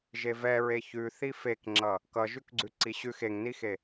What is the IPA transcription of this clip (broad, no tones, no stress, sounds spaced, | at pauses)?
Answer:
ʒ e v ɛ ɹ e ç ʉ θ i f e k ŋ͡ǁ ʌ | k ʌ ʒ ʉ k ɡ͡ǀ ʉ ǀ i ɕ ʉ x e ŋ n i x e